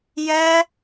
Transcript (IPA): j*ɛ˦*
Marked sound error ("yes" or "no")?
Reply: no